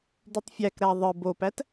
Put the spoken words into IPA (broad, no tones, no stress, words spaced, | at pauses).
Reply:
dytˤfʲækɾæ ðˤɯ bopæt